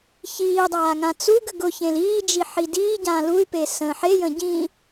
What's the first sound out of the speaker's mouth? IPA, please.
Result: ç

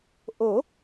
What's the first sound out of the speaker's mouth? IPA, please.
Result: ʔ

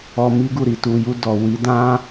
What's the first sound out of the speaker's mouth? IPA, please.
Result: ɔ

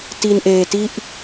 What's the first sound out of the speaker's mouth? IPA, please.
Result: t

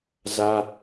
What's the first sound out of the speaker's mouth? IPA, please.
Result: z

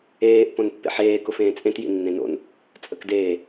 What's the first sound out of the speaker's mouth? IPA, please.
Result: eː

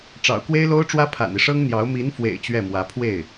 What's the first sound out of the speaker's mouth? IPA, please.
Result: ʈ͡ʂ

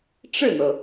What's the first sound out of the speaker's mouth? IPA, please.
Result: ʈ͡ʂ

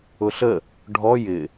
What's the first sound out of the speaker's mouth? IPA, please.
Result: ʊ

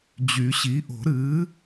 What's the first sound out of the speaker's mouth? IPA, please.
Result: d͡ʑ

